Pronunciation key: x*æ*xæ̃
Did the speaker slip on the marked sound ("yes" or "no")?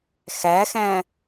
no